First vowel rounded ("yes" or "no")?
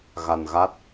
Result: no